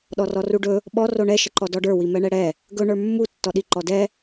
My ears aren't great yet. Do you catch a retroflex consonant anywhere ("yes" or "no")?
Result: yes